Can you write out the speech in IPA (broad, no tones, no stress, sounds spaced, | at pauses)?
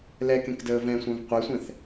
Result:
l ɛ k ẽ k d əː v ɛ̃ sʷ œ̃ v qʷ ɛ sʷ ɛ̃ θ